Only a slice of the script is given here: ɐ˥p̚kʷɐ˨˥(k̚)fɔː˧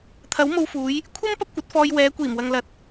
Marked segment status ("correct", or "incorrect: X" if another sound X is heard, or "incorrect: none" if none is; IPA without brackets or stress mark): incorrect: t̚